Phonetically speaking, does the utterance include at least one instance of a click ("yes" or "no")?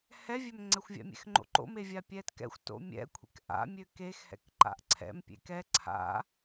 yes